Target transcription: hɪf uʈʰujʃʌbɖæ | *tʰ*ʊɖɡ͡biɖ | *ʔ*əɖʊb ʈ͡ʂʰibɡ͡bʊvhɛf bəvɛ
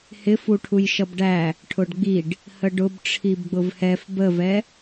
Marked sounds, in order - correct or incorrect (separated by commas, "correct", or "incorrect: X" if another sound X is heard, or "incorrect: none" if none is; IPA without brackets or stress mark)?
incorrect: ʈʰ, incorrect: h